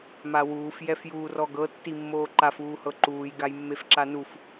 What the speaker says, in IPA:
m a w uː f j ɛ f j uː r ɔ ɡ ɤ tː i mː oː ǃ a f uː h ɤ ǃ uː j ɡ a j mː e f ǁ a n u f

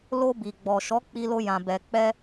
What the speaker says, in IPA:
l o˧ b i˨ ɡ͡b ɔ˨ ʃ ɔ˨˦ k͡p i˧ l o˧ j ã˨ b ɛ˨ k͡p ɛ˧

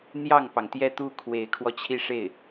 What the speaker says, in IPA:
n̪ j ɑ˥˩ ŋ p ɑ˩ ŋ t̪ j ɛ˥˧ t̪ u˥˩ kʰ w e˧˥ ɪ̯ kʰ w ɔ˧ t͡ɕʰ i˥˧ ʂ e˥˩ ɪ̯

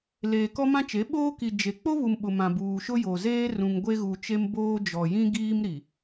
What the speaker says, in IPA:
l eː˨ k ɔ˦ m ã˦ t͡ʃ e˨˦ ɓ oː˦ k i˨ d͡ʒ e˨ k͡p o˦ β u˨ m ɓ ʊ˨ m ã˨ b uː˨ ʃ ʊ˦ j o˨ z eː˦ r ũ˨ ŋ ɡʷ e˦ ɣ u˨ t͡ʃ e˦ m b oː˦ d͡ʒ ɔ˨ j ĩ˦ ɡ iː˦ m ɾ i˨

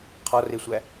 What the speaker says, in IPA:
qʰ ɒ r e sʷ æ

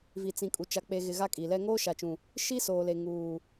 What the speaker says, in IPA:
v i˨ t͡s ĩ˨ kʼ u˨ t͡ʃ a˨ k͡p e˨ ɣ ɪ˨ ɣ a˦ kʼ i˨ l ɛ˦ ŋ oː˦ ʃ a˨ t͡ʃ ũ˨ | ʃ i˦ s oː˨ l e˨ ŋ uː˨

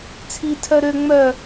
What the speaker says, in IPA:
t͡sʰ i tʰ œ ɾ ø ŋ͡m œ

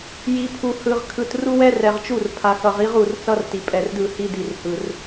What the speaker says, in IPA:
j i˨ pʰ u˨ h ɯ˨ ʁ kʰ ɯ˨ t r u˦ w ɛ˦ r ɛ˨ ʁ t͡ʃ u˦˨ r pʰ a˨ x ʌ˨ ʁ i˦ ʁ u˨ r t͡s ʌ˦ r t i˨ pʼ ɛ˨ r d ɯ˦˨ h i˦ d i˨ r h ɯ˨ r

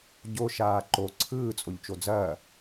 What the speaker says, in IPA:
ɟ o ʃ aː ǃ o ǀʰ ɯː t͡sʼ o ʎ t͡ʃ o d͡z ɐː

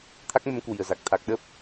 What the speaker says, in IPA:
t̪ʰ a˦˥ k̚ m ə˨˦ m k w i˨˩ ə̯ z a˨˩ k̚ t̪ʰ a˨˩ k̚ ɗ ə˦˥ p̚

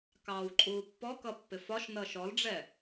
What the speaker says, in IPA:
k ɑː w ǃʼ uː pː ɔ k ʌ pː ɪ f ɒ ʃ n ʌː ʃ ɔ l ɖ͡ʐ ɛ

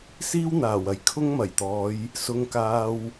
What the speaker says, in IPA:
s iː˥ w n̪ aː˨˩ w ɐ˨˧ j kʰ ʊ˥ ŋ m ɐ˨˩ j t̪ ɔː˨˧ j | s ʊ˧ ŋ k aː˧ w

